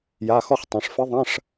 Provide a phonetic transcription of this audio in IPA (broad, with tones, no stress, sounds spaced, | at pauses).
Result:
j a˩˧˩ x ɔ˦˨ χ tˤ ɐ̃˩˧ ʂ f ɘ˧˥ ðˤ ɐ̃˧˥˧ ʂ